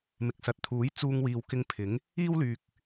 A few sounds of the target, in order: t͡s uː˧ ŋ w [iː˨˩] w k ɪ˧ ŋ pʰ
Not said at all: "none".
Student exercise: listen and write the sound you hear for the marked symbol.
iː˨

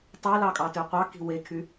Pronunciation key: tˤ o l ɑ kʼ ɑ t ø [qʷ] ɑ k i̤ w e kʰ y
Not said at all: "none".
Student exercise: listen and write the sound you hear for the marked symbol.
qʷ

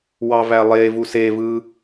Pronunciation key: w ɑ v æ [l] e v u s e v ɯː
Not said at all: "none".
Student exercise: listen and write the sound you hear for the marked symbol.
lˠ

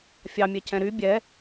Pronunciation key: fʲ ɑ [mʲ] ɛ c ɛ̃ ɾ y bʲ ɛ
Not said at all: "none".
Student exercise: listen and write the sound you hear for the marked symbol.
mʲ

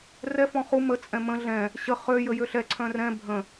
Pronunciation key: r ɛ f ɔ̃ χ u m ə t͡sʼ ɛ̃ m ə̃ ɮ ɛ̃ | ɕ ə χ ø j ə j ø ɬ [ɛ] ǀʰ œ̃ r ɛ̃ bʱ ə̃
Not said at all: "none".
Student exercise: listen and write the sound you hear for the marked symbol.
ɛ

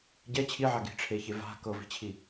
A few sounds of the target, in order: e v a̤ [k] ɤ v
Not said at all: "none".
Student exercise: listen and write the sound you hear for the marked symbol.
k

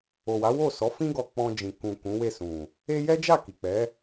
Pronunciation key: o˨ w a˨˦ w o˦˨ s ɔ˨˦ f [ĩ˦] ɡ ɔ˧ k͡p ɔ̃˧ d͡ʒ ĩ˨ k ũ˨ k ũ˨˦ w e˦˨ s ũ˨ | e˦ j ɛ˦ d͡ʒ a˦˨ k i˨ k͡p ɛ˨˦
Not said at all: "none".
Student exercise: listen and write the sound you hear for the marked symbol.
ĩ˦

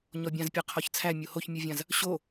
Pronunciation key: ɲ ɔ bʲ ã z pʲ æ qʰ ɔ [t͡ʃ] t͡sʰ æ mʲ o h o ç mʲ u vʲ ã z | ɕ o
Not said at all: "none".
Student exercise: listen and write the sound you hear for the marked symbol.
ç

